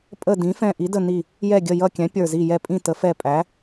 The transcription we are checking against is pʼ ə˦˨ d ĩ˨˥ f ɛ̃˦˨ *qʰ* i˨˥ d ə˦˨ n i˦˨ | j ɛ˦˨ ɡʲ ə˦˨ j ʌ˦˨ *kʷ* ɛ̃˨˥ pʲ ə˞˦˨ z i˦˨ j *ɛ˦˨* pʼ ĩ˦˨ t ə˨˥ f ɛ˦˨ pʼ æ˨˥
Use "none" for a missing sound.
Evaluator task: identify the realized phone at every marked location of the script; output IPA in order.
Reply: ʔ, kʲ, ɛ˦˨

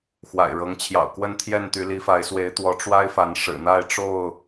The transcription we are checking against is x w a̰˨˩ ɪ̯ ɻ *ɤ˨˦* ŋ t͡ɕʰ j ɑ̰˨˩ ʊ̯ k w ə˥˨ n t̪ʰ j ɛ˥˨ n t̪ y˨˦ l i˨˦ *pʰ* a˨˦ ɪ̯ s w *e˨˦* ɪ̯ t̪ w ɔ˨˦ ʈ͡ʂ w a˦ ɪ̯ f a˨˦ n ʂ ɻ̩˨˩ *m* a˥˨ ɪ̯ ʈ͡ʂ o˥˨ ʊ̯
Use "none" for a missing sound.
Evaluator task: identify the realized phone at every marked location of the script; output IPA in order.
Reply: ɤ˨˦, f, e˨˦, n̪

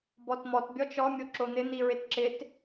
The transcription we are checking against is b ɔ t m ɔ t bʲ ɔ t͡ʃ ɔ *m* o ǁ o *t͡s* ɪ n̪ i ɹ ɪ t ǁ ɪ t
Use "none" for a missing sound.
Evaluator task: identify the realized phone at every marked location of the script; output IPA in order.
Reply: mʲ, n̪

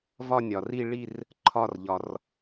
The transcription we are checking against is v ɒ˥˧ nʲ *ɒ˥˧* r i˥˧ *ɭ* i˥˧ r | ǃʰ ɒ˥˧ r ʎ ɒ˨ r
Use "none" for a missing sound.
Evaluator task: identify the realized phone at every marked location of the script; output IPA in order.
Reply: ɒ˨, ɭ

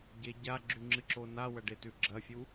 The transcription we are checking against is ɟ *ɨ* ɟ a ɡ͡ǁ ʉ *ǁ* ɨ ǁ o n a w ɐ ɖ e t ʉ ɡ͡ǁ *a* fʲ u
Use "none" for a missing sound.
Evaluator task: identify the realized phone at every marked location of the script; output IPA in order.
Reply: e, ŋ͡ǁ, ɐ

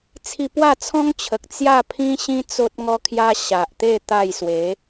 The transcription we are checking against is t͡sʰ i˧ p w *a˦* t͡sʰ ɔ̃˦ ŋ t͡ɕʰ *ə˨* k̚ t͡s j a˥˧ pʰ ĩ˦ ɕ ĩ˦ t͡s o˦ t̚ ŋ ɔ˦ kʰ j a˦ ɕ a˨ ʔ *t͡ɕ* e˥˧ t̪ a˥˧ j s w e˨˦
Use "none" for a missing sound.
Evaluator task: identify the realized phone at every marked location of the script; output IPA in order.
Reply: a˥˧, ə˨, t̪

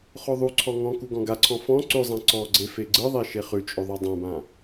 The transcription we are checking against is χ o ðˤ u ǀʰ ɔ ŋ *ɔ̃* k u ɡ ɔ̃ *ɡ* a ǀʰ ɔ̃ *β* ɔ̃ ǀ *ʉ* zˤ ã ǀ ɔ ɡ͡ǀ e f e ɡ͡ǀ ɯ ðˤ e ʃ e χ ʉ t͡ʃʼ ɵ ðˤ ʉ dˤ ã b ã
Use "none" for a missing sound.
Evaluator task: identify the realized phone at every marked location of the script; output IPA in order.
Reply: ɔ̃, ɡ, f, ʉ

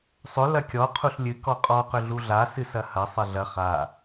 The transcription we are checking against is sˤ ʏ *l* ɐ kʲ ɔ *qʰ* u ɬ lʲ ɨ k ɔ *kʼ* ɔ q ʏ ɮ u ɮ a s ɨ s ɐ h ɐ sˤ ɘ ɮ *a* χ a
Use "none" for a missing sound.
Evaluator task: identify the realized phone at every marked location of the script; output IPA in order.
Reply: l, qʰ, qʼ, ɐ

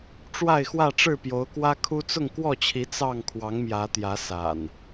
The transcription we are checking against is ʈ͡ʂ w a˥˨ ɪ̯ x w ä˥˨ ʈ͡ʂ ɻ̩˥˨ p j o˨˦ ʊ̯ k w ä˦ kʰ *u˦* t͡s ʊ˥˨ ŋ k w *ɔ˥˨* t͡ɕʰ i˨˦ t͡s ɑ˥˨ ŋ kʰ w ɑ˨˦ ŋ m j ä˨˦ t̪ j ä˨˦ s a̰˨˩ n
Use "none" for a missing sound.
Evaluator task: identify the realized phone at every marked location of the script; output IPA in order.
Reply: u˦, ɔ˥˨

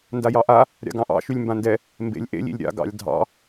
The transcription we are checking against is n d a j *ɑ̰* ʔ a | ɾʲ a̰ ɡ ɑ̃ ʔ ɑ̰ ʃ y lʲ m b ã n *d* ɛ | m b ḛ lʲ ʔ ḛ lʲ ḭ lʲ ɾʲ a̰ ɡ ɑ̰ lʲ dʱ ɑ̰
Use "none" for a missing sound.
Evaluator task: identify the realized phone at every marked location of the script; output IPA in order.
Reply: ɑ, d

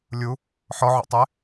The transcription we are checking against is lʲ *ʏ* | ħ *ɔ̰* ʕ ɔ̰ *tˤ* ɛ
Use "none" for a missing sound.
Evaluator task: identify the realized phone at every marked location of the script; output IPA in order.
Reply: u, ɔ, tˤ

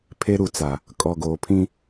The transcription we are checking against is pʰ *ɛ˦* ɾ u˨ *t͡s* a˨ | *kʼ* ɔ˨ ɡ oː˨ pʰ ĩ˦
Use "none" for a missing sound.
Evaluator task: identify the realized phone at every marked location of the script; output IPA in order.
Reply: e˦, t͡s, kʼ

